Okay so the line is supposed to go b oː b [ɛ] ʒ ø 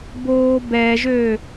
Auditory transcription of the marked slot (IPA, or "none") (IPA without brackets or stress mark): ɛ